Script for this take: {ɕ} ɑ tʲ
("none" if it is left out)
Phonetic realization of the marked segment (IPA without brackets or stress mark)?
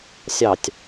sʲ